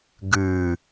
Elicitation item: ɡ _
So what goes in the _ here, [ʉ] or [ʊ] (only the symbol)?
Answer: ʉ